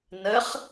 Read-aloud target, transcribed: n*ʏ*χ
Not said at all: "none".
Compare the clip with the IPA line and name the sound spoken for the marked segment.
ə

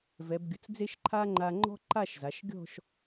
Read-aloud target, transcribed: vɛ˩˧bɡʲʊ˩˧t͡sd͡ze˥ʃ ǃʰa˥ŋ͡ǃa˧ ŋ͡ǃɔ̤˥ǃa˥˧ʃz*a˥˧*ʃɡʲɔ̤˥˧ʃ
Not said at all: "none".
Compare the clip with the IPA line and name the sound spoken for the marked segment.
a˩˧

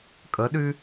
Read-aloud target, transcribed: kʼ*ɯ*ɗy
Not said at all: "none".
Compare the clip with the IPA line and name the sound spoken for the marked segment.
ə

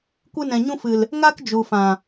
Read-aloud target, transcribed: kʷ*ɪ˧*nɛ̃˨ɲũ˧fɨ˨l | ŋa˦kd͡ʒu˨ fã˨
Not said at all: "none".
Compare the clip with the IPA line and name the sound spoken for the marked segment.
ɨ˧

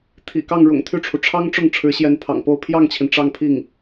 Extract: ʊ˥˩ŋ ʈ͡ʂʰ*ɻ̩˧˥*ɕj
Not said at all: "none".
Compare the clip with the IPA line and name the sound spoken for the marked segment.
ɻ̩˧˥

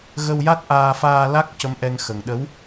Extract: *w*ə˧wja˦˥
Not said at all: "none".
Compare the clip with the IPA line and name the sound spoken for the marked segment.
ɣ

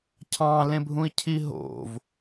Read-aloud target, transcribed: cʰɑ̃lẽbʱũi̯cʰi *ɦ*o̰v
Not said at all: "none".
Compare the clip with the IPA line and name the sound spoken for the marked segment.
ɦ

